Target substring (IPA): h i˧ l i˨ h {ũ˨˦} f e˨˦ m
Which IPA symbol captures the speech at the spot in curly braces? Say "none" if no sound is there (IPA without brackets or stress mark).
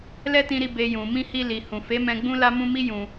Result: ũ˨